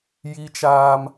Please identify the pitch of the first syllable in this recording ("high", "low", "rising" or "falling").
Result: high